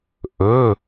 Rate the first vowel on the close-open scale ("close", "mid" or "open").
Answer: mid